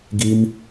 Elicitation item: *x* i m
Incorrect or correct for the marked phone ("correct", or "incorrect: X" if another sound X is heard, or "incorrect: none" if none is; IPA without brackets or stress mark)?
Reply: incorrect: ɡ